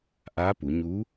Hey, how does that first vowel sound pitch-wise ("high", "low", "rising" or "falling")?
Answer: rising